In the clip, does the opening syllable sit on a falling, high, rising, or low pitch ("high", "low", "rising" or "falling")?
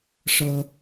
high